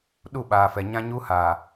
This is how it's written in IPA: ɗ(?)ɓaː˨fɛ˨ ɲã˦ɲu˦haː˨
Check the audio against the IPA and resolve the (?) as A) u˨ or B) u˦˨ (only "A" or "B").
B